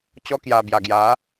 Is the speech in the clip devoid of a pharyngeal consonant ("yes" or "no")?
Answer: yes